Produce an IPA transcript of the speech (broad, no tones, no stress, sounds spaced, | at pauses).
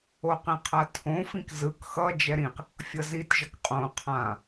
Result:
o q ĩ qʰ a tʰ õ f ĩ k z ɯ k x ʌ d͡ʒ ɛ ɾ ĩ q | fʲ ʌ z i t ʒ ʌ k qʼ õ qʰ ã